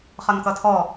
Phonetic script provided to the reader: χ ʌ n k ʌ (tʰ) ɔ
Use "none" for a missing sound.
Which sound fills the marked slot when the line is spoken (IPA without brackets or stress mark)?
tʰ